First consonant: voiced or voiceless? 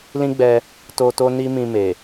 voiced